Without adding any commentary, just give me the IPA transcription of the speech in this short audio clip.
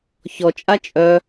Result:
çɔt͡ʃʼa t͡ʃʼœ

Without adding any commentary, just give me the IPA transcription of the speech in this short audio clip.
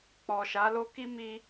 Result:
k͡pɔ˨ʃa˨˦lo˦ ki˦mi˧

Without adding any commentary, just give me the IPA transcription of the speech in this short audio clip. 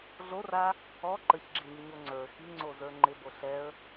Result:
ɮora | ɔ ǃəçɡ͡ǁiɲiɲo ŋ͡ǀə˞ xiŋ͡ǀozə˞ ŋ͡ǃɪbo ɬɛə̯

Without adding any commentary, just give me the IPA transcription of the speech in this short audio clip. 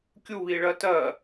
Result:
kʲuβiɭɜ tɜ

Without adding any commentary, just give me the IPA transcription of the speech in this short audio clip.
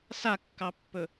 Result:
sakːɑpːɵ

